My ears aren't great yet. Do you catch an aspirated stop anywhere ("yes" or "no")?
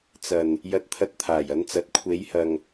yes